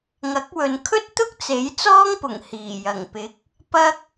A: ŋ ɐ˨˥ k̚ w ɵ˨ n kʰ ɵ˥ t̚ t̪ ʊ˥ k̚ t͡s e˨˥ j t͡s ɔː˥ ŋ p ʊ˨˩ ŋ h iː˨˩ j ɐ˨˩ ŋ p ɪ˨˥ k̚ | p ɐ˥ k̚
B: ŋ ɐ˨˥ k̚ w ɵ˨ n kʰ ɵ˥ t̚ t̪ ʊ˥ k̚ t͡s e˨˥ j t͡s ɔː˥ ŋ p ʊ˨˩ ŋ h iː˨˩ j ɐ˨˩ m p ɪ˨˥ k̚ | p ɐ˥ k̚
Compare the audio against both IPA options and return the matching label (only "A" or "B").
A